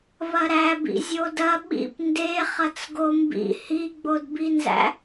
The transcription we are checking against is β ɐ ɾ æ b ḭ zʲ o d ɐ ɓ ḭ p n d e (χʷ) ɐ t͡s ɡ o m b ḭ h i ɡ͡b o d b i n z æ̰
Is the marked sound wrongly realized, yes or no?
yes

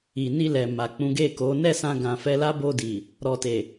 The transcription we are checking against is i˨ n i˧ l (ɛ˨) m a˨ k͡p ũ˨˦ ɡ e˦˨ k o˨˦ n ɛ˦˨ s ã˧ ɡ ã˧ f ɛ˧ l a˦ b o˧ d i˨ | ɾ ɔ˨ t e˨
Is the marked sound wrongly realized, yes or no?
no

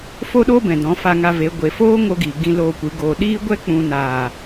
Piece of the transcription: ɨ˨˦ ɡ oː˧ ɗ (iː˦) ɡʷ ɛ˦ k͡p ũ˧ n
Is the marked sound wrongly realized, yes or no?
no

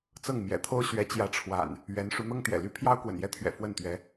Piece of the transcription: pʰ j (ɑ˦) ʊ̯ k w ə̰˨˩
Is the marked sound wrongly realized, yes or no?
no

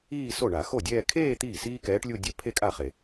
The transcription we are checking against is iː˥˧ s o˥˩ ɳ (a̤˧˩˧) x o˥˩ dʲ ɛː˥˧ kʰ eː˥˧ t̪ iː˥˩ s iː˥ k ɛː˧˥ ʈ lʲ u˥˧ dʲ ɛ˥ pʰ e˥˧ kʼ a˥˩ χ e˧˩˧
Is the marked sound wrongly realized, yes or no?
yes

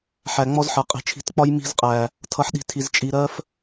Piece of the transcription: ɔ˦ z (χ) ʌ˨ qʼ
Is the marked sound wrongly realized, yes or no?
yes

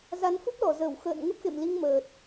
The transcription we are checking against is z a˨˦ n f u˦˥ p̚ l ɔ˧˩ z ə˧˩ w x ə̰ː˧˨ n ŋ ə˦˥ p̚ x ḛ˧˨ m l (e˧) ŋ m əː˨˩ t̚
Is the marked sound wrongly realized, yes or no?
yes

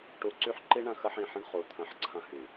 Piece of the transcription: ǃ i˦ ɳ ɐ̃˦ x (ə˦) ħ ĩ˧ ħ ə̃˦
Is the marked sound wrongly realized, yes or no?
no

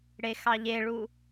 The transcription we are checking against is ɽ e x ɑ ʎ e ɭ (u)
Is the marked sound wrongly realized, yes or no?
no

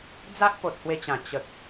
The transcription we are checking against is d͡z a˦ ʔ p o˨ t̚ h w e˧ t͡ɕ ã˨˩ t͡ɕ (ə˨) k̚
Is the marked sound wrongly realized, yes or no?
no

